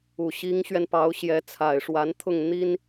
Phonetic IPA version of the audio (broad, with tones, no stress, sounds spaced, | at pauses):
u˨˩ ɕ i˧˥ ŋ ɕ ɥ ɛ˧ n p ɑ˧˥ ʊ̯ ɕ j ɛ˧˥ t͡sʰ a˨˩ ɪ̯ ʂ w a˧˥ n t̪ʰ ʊ˥˩ ŋ n̪ i˥ n